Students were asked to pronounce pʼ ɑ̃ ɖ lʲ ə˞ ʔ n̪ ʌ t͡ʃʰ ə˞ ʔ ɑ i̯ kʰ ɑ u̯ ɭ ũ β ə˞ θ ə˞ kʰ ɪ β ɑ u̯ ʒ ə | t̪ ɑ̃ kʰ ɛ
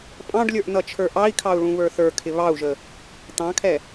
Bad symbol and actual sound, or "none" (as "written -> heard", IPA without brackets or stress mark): none